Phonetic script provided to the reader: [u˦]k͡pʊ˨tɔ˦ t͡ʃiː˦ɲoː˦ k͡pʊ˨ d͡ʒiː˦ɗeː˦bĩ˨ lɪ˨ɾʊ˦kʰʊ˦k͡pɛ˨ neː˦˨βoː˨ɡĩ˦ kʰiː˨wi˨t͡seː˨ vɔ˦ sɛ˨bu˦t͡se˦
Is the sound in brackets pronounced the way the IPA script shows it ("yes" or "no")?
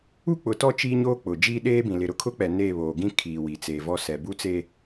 yes